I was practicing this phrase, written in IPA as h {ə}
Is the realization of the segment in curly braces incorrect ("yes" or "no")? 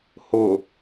yes